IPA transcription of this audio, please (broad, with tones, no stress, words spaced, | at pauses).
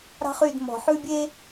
ɾɑ̤˦χy˦˨d mɔ̤˨ħʉ˦bʲe˦